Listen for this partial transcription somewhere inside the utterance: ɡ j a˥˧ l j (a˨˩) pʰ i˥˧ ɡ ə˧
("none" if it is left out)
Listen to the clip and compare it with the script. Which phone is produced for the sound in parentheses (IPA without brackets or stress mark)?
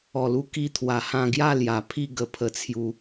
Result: a˨˩